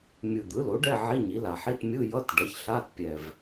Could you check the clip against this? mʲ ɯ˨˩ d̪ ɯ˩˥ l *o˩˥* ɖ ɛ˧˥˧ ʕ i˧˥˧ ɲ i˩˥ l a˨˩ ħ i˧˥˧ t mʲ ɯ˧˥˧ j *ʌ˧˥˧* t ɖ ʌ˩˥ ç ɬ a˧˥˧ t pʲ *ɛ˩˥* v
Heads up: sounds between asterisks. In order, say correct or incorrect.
correct, correct, incorrect: ɛ˨˩

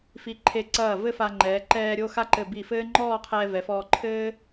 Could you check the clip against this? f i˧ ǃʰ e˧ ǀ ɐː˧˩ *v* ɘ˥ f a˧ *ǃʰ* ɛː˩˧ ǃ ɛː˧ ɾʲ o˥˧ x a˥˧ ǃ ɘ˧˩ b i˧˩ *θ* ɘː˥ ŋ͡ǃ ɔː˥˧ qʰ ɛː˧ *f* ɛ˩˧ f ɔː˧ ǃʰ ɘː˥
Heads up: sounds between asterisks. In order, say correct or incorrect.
correct, incorrect: ŋ͡ǃ, incorrect: f, incorrect: v

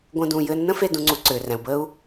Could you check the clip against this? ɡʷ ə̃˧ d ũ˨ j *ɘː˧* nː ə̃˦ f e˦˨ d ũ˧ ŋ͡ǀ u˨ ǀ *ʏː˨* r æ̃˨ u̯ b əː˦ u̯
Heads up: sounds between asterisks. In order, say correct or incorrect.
correct, correct

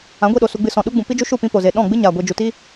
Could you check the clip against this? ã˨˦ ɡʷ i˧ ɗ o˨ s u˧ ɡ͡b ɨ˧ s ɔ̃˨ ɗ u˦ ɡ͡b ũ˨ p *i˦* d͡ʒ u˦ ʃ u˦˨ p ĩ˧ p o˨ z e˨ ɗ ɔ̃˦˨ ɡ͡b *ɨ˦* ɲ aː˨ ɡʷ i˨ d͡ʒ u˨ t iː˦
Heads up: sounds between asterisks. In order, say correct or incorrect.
correct, correct

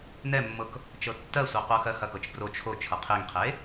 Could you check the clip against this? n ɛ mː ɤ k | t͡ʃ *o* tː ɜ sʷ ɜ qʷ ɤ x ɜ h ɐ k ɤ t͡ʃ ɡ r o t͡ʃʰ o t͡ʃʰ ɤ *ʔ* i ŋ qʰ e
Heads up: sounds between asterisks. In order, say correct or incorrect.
incorrect: ɤ, incorrect: qʰ

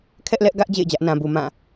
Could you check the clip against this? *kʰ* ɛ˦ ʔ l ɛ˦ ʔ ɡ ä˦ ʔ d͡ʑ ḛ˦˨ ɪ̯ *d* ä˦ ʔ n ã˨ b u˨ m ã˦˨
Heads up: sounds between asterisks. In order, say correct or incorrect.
correct, incorrect: d͡ʑ

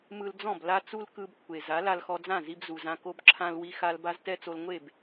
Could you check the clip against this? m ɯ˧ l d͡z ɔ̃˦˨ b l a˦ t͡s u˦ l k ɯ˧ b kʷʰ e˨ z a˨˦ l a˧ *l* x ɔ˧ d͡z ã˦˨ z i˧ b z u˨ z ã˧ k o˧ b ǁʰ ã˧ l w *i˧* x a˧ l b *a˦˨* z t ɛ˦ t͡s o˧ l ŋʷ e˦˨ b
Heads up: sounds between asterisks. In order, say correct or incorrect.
correct, correct, incorrect: a˦

